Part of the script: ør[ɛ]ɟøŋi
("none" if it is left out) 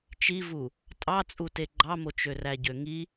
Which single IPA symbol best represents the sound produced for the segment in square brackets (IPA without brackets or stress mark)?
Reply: æ